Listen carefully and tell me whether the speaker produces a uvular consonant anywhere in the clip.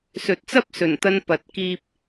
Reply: no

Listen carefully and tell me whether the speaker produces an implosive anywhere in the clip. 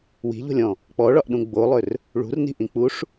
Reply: yes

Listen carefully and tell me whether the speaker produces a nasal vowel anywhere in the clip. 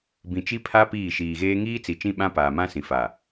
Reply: yes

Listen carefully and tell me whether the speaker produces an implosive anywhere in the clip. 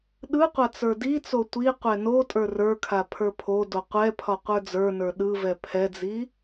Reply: yes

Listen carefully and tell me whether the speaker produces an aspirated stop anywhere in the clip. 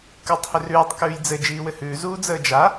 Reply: no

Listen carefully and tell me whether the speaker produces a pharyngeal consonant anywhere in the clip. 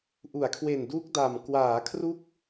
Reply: no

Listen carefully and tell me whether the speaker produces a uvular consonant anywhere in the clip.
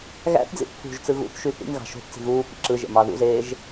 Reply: no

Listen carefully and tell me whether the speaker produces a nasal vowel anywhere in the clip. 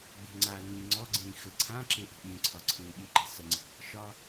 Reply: yes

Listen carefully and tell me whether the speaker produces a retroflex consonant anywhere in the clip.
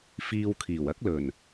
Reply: no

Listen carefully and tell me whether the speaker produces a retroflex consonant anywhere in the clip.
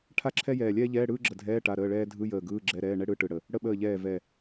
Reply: yes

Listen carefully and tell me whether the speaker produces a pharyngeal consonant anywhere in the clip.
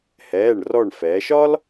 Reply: no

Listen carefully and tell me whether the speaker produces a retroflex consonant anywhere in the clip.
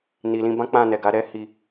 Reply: no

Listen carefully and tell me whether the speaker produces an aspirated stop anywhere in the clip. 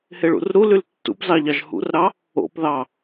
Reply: no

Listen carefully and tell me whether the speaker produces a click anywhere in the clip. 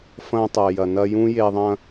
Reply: no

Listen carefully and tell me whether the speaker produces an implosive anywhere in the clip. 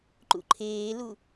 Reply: no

